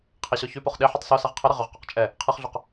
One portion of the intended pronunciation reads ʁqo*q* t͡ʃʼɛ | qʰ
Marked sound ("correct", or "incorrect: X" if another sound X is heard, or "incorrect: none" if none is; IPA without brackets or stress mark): correct